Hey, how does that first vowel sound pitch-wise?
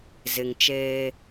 low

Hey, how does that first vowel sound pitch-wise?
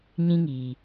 high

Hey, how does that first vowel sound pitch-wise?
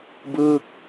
falling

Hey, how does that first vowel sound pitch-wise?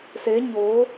rising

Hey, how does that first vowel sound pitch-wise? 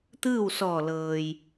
falling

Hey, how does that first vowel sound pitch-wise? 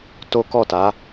high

